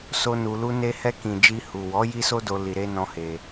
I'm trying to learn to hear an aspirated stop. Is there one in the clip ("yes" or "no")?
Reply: no